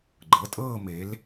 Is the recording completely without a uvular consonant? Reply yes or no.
yes